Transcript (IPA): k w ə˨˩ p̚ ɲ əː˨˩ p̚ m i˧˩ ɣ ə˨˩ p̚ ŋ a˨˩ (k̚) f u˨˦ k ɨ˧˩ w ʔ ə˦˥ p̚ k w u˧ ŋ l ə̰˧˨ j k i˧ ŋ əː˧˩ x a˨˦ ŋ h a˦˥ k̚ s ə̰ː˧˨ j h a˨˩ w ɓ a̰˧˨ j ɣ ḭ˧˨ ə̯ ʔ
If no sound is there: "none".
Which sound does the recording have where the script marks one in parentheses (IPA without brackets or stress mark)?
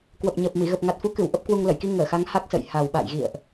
t̚